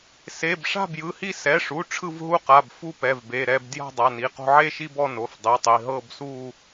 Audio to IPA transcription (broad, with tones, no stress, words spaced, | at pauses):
se˩˧˩bʂa̤˥˧bjɯ˩˧˩hi˥˧ sɛ˩˧˩ʂu˩˧˩ ʈ͡ʂʰɯ˥˧vɦu˥˧qa˩˧˩bfu˥˧ pɛ˩˧˩vbe˩˧˩ɾɛ˥˧b dja̤˥˧dˤa˩˧˩ni˩˧˩qo̤˥˧ ʕe˥˧ʃi˥˧bɔ˥˧ no˩˧˩fdˤi˩˧˩tˤi˩˧˩ ɦɤ˥˧bsu˥˧